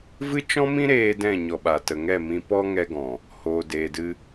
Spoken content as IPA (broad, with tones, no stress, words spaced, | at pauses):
vɨ˦t͡ʃɔ̃˦mĩ˦ ɾeː˦dɛ̃˦˨ ɲɔ˧ɓa˨tə˨ ŋɛ˦˨mĩ˧ pɔ˦ŋɛ˧ ɡɔ̃˨ | hoː˧ deː˧dɨ˦